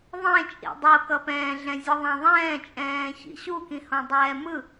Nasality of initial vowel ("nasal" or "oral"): nasal